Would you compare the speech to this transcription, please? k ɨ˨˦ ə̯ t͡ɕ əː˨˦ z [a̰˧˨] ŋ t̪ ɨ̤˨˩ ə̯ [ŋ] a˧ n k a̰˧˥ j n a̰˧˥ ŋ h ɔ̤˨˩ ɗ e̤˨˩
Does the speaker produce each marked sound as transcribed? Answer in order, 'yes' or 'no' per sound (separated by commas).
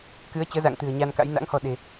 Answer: yes, no